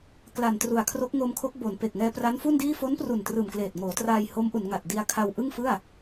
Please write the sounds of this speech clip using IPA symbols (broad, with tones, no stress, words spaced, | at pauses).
kla˨˩ntru˨˩a̯kʰro˦˥k̚ ŋo˧mkʰo˦˥k̚bo˩˦n pe˨˩k̚ ŋɛː˧pra˦˥nfu˥˩ndiː˥˩ fo˦˥npru˨˩ntrɯː˨˩mkleː˨˩t̚ ŋoː˩˦traː˧j ho˦˥mʔu˩˦nŋa˨˩t̚ di˧a̯kʰa˧wʔɯ˥˩ŋfɯ˥˩a̯